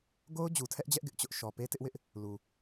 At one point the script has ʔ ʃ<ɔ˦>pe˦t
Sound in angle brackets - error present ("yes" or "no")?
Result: yes